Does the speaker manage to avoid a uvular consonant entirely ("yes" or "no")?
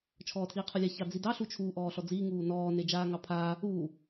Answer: no